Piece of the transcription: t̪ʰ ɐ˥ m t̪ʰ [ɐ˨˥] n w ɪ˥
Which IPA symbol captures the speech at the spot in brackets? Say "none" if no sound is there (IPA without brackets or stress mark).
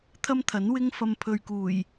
ɐ˨˥